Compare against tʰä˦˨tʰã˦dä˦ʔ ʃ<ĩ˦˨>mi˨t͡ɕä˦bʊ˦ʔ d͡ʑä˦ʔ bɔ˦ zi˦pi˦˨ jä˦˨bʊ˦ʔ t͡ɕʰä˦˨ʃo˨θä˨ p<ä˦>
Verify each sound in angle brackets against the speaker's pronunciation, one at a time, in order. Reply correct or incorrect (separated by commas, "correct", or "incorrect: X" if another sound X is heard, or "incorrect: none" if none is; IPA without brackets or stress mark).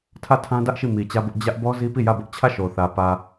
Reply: incorrect: i˦˨, incorrect: ä˨